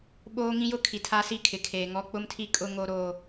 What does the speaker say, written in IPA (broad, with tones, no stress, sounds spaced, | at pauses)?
ɓ oː˦ ŋ ĩ˦ j ʊ˦ kʰ i˨ tʰ a˦ s i˦˨ kʰ ɪ˨ kʰ eː˨ ŋ ɔ˦ k͡p ʊ˦ m tʰ i˦ kʼ ʊ˦ ŋ o˦ ɾ oː˦